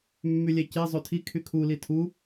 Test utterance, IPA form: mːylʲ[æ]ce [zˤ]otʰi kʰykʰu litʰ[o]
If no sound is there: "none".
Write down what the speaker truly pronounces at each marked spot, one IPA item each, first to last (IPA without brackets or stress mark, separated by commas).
æ, zˤ, u